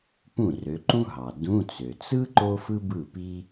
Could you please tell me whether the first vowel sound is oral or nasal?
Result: nasal